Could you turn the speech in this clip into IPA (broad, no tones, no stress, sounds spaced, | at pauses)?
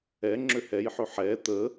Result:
ɛ ŋ͡ǁ ø h ɛ j ħ ø ħ ɛ t̪ ə